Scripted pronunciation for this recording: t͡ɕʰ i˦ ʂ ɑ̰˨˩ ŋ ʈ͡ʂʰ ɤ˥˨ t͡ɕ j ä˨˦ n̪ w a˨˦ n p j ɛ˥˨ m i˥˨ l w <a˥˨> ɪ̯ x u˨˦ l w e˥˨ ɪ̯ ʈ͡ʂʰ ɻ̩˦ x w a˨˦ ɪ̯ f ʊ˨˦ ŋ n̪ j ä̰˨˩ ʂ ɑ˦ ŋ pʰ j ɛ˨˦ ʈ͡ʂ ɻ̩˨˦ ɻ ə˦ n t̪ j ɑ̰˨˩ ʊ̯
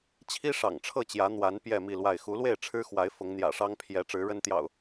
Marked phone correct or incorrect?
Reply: correct